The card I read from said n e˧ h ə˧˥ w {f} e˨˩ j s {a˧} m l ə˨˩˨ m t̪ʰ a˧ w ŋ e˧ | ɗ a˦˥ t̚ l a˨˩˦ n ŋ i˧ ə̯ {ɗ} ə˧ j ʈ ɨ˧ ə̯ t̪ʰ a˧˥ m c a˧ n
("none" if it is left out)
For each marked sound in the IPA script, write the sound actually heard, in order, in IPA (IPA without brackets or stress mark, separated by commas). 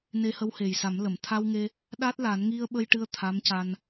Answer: h, a˨˩˦, ɓ